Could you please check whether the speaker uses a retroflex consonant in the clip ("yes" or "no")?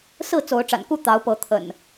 yes